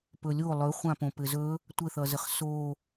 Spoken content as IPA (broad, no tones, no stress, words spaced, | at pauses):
pɵlʲo lˠɵχʷãpõ pɘzɵ | tʷɘθʌzəχ so